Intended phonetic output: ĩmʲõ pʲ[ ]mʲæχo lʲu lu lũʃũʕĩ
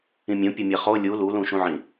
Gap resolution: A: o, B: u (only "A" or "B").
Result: A